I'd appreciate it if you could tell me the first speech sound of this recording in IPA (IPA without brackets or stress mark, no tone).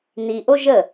n